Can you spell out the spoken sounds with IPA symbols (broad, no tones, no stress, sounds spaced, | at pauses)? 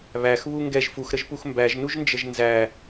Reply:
β æ x β u ŋ ɡ ɛ ʒ f u x ɾ ə ʒ p u x m b æ ʒ n u ʒ n d͡ʒ ə ʒ n z æ